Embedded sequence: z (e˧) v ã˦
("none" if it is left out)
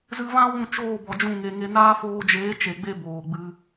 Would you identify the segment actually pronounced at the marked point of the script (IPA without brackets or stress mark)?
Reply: ɨ˧